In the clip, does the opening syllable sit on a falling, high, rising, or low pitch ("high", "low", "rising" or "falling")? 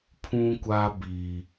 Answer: high